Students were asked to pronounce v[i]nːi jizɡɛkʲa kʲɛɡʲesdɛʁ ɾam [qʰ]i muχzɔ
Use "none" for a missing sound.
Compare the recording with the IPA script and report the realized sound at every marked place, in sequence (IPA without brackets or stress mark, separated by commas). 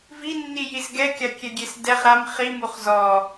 i, χ